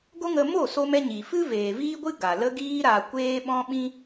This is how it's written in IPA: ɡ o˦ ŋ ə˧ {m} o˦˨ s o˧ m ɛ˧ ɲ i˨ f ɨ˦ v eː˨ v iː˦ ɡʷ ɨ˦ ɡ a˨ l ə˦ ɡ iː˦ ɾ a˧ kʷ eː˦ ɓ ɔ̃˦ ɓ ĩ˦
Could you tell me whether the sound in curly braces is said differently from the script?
no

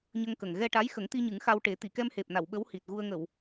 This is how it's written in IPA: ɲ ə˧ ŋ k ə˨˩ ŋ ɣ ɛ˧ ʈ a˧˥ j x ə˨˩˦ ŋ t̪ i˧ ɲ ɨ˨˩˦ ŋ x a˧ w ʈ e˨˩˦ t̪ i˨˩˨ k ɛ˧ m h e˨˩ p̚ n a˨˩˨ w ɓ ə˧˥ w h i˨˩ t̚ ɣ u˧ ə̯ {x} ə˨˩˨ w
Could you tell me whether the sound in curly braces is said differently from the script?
yes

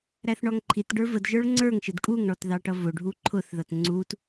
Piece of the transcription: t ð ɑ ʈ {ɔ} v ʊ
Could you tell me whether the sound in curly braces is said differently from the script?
yes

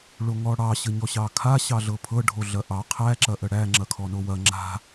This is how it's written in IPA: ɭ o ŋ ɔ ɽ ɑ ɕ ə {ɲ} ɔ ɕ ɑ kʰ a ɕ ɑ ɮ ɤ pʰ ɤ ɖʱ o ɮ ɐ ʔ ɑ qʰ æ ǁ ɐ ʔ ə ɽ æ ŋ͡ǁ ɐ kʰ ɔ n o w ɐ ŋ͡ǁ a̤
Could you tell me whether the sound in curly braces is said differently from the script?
no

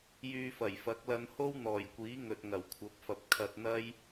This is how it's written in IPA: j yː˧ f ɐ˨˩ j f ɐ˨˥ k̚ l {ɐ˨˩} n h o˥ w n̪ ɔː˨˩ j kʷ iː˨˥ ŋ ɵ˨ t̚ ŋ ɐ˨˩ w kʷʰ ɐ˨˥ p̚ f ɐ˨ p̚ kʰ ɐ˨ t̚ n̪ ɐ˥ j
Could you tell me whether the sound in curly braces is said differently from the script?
yes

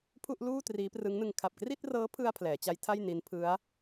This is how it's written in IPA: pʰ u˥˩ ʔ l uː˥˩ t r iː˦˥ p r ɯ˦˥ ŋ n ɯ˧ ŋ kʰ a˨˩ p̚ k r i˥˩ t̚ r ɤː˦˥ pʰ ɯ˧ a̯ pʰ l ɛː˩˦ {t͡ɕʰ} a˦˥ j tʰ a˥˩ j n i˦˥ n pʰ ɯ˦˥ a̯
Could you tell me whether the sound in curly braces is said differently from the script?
yes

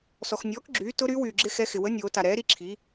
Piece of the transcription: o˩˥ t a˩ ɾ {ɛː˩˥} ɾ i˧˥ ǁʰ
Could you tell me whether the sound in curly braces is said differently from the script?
no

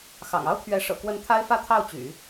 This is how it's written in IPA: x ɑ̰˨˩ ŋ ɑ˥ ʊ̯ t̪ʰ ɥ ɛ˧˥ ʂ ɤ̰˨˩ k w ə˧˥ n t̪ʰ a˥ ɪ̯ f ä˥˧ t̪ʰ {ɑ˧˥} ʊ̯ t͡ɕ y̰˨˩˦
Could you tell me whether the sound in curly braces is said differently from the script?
yes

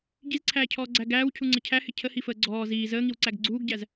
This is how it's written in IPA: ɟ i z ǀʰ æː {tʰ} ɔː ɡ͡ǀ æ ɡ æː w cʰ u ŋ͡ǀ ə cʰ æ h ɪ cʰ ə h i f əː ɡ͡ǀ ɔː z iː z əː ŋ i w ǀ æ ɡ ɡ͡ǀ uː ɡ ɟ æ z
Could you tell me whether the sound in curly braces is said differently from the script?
yes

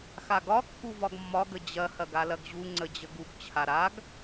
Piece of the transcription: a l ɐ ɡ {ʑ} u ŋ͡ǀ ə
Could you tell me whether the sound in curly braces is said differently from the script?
no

